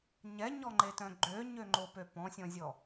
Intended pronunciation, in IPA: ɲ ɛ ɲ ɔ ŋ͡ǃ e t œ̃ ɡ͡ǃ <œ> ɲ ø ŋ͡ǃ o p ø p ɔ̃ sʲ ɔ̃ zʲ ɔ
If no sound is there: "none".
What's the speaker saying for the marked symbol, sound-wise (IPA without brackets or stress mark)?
ø